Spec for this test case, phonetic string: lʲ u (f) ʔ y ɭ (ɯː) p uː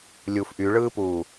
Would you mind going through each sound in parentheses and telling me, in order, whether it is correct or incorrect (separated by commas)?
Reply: correct, correct